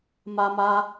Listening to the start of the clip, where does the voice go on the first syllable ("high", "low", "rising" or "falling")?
high